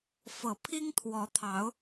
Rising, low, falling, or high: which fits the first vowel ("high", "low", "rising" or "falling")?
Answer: low